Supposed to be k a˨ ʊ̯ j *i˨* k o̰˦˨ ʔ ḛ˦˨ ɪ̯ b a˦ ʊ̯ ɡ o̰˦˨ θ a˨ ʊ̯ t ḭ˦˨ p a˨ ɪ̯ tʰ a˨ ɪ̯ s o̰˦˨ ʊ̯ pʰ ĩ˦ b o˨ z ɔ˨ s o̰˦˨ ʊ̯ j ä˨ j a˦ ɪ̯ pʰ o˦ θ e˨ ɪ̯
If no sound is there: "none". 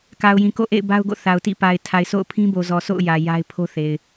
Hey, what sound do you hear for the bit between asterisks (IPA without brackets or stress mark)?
ĩ˨